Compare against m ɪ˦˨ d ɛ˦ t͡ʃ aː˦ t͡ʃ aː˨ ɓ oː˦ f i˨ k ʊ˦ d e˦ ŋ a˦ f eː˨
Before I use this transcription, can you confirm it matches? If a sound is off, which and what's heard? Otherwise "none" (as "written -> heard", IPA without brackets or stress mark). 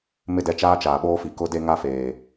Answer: none